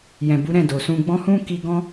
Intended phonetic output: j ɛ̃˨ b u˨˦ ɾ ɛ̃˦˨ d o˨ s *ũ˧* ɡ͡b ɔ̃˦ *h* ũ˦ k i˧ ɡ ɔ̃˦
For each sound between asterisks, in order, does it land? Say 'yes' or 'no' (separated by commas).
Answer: yes, yes